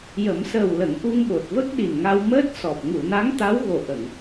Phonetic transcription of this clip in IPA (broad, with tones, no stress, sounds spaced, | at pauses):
j ə˨˩˦ m s əː˨˩ w l ə˨˩˦ ŋ ʔ u˧ ŋ ɓ o˨˩ t̚ v ə˦˥ k̚ ɗ i˨˩ n ŋ a˧ w m əː˦˥ t̚ s ɔ˨˩ p̚ ŋ u˨˩˨ n a˧˥ ŋ t̪ a˧˥ w ɣ o˨˩ ʔ ə˨˩˨ ŋ